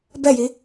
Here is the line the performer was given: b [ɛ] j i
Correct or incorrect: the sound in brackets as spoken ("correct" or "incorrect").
correct